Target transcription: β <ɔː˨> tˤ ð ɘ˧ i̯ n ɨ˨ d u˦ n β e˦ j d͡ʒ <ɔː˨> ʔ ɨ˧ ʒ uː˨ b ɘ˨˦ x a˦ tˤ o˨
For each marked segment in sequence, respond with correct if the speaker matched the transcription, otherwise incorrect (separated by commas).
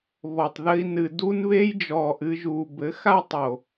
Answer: incorrect, correct